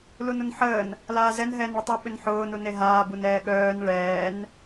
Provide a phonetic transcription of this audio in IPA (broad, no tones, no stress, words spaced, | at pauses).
lunʊnħəːn | laːzɛn ɦɛːnɭətˤɐ ɓʏnħʊː nuneɦaː bunɛːɠœːn ɭɛːn